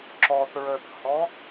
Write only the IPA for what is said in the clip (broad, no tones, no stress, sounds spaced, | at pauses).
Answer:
ǁ ɔ θ ɹ ə θ h ɔ